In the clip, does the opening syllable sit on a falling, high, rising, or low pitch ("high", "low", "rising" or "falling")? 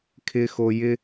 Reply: high